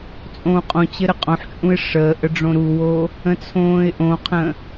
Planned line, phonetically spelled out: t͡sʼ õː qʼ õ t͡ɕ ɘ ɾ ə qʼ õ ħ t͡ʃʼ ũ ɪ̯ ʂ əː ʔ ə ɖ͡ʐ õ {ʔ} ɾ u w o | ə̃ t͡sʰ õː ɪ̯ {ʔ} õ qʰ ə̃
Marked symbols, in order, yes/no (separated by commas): no, yes